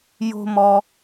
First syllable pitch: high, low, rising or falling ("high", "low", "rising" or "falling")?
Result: high